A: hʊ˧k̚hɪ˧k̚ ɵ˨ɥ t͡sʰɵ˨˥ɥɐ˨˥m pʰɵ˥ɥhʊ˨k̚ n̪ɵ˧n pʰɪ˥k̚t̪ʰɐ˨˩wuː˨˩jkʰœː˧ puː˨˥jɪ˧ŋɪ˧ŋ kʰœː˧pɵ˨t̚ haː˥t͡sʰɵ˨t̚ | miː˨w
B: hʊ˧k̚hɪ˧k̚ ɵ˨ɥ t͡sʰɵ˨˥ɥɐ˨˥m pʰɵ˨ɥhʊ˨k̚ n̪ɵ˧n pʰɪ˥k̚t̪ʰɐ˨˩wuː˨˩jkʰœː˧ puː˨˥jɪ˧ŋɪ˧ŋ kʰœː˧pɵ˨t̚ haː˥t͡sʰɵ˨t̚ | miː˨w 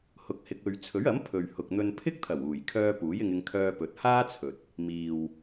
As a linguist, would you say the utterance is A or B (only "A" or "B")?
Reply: B